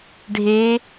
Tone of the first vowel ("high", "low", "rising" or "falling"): rising